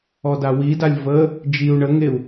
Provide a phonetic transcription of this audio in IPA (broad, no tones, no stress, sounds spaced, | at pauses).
ɔ d a w i d a lʲ v ə | d͡ʒ i u̯ ɳ ə ŋ e u̯